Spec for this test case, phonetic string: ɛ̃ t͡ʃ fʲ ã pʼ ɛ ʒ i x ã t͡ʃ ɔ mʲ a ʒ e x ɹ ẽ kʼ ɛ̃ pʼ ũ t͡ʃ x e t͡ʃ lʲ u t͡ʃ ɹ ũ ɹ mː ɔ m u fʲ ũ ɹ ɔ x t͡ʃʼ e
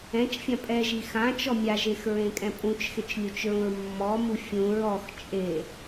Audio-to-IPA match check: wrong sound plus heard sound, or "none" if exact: none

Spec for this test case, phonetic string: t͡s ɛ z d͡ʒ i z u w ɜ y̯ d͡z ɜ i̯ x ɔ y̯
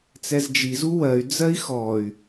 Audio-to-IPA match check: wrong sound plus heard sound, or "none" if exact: none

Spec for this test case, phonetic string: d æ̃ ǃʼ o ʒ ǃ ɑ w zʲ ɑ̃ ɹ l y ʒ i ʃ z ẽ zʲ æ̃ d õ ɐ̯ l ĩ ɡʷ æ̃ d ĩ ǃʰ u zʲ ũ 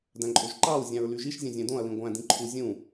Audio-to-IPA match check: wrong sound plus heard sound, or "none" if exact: z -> zʲ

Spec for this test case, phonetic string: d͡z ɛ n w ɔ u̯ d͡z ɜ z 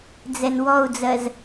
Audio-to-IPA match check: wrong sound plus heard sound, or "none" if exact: none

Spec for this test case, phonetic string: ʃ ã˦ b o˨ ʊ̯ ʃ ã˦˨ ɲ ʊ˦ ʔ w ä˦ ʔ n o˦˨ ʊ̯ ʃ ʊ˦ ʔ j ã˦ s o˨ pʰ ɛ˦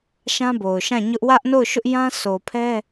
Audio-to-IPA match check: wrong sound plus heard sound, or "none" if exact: none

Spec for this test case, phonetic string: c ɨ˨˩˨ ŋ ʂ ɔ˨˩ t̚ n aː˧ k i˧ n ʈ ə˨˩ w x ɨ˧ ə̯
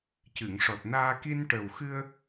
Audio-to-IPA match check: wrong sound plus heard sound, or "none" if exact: none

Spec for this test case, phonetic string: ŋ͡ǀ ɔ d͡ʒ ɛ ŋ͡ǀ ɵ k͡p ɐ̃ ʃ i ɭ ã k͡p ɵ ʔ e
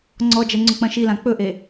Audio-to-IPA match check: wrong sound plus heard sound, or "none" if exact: ɭ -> l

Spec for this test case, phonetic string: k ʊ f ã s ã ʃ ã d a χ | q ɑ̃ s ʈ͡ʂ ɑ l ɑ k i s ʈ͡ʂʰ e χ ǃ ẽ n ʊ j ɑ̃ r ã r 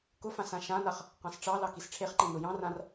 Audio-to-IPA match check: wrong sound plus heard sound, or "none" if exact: d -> n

